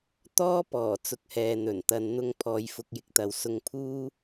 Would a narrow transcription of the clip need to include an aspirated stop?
yes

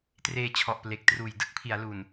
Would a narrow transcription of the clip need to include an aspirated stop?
yes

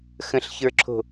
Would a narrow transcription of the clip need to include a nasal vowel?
yes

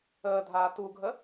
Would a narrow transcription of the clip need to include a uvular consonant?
no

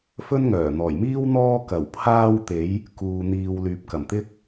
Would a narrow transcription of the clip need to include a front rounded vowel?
yes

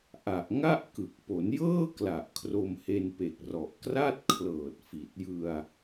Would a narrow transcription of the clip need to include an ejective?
no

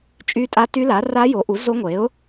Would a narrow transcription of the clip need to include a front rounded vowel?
yes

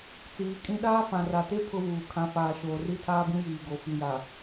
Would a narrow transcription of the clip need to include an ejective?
yes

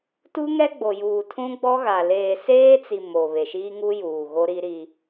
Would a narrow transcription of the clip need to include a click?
no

